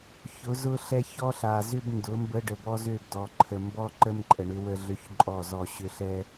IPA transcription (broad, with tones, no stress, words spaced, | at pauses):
çʊ˨˦ zʊ˦ɬɛ˦ çɔ˦ɬa˨zʏ˦b ndʊ˨˦mbə˦ ɖə˨bɔ˦zø˦˨bdɔ˨ ǃʰə˨mbɔ˦ ǃə˦m ǃʼə˨ɳʏ˦ wə˦ɮø˦çǃʼɔ˦˨zɔ˦˨ ɕʏ˦ɬɛ˦